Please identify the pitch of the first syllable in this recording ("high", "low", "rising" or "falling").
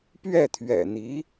falling